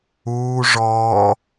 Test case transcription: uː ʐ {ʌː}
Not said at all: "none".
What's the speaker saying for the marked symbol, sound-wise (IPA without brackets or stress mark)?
ɔː